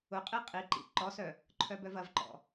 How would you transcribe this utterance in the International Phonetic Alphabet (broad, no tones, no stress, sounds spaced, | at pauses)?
ʊ qʼ i qʼ i ǃ ḭ ǃ ɔ s œ | ǃʰ œ b œ v ɐ v ǃ ɔ̰